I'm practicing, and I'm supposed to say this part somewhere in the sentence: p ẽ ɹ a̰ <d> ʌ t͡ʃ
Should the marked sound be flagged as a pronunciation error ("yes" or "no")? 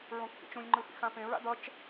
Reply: no